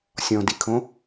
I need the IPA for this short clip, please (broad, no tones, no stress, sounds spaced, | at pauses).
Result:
sʲ ɔ̃ d i kʰ õ